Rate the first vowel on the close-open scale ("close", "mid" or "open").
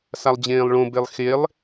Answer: open